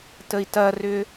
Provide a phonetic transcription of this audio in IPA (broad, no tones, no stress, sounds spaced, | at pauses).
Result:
t ə i̯ t ɐ r ʏ